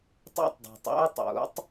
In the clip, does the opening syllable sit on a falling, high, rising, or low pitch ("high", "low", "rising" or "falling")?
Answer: high